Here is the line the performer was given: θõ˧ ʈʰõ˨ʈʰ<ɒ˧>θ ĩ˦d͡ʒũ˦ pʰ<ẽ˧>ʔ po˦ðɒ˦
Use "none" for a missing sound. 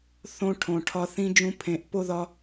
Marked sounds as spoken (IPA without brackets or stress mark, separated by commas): ɒ˧, ẽ˧